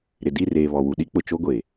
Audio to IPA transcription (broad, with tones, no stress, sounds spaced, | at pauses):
ɾ ɪ˨ d i˦˨ r eː˨ β ɔ˨ w u˨ ɗ i˦ k͡p ʊ˨ t͡ʃ o˦ ɡʷ e˨